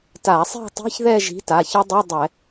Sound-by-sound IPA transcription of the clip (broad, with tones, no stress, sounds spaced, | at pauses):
t a˧˩˧ sˤ e̤˥˧ tˤ i̤˧˥˧ ç ð ɛ˥˧ ʒ i̤˨˥ t a˩˧˩ ç ʌ˦˥ dˤ i˧˥˧ dˤ ɛ˧˩˧